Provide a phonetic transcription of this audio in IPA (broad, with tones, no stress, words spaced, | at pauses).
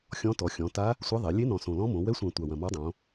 xʲɔ̃˧˥tɔ˩˧ xʲɔ̃˩˧ta˧˥ | sʷɛ˧˥ðˤɛ˩˧ lʲe˧˥ nɔ̃˨˩sõ˨˩lɔ̃˧˥mõ˩˧ wɛ˧˥sʷã˨˩ tʷa˨˩wɐ̃˨˩mɔ˧˥dˤõ˩˧